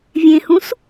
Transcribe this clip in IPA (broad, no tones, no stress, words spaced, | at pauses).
vʲẽhũs